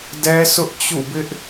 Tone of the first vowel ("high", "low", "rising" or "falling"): high